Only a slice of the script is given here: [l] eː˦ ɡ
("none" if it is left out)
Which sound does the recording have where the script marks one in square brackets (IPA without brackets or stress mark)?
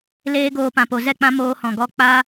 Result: l